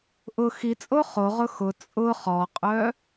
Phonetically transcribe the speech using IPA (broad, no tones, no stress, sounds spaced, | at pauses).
ʔ ʊ x i t͡sʼ o χ o ʁ ʊ x ʊ t͡sʼ ʊ χ ɔ qʼ œ